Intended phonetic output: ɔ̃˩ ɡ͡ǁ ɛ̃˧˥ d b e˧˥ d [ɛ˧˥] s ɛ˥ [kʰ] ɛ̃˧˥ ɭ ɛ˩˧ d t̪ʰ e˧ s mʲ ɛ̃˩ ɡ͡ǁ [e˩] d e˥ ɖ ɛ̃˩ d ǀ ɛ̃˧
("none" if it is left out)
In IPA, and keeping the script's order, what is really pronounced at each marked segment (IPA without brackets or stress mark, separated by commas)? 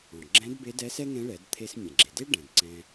ɛ˧˥, ŋ, e˩